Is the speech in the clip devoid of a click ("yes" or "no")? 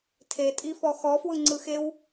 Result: no